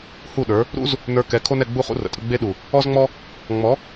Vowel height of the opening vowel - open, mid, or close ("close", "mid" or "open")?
close